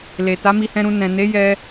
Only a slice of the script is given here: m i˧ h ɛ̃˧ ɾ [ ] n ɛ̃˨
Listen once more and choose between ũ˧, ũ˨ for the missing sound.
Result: ũ˧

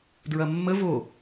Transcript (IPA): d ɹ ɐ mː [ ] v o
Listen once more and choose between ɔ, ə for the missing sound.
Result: ə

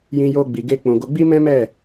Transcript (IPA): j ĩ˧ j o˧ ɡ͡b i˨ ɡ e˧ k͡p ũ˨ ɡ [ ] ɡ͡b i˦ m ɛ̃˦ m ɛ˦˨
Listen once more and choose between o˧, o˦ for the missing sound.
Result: o˧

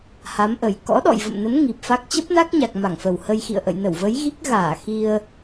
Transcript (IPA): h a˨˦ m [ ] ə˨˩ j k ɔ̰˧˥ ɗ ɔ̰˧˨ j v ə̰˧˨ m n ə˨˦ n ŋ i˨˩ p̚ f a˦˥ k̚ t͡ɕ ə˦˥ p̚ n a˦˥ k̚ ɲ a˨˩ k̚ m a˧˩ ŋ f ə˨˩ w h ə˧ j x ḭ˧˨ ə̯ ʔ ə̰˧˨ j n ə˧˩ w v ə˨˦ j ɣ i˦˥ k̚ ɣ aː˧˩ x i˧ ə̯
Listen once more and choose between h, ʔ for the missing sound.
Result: ʔ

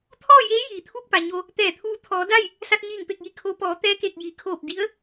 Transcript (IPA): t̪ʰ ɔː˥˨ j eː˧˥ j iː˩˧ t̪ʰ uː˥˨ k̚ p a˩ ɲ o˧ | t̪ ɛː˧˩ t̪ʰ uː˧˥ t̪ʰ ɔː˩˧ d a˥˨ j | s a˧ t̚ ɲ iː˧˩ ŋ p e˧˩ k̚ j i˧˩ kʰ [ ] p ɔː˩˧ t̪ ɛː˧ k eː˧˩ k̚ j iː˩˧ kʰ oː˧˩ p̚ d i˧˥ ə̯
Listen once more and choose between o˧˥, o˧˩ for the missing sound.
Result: o˧˥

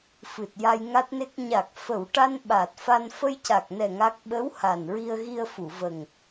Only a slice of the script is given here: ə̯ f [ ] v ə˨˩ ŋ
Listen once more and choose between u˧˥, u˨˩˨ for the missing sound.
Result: u˨˩˨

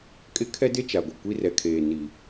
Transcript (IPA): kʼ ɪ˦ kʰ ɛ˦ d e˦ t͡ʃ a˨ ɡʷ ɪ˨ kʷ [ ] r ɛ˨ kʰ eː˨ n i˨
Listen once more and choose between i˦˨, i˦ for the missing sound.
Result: i˦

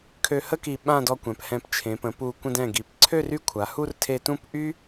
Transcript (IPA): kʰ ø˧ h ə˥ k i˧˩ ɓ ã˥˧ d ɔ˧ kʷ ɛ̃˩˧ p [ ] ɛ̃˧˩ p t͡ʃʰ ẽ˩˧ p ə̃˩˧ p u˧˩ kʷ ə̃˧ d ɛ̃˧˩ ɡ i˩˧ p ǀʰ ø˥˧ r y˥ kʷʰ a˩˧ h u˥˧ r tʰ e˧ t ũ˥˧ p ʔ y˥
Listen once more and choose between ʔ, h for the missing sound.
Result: h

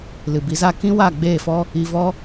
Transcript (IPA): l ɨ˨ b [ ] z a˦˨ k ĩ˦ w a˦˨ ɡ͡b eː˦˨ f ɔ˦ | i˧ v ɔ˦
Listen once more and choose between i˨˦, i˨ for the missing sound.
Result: i˨˦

